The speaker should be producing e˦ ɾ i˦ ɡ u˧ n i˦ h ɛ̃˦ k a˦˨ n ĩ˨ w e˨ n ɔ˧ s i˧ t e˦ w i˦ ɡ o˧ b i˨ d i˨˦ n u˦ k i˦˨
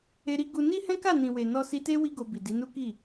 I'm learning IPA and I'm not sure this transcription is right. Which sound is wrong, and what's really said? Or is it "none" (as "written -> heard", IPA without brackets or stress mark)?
none